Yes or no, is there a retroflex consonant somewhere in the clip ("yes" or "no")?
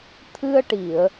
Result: yes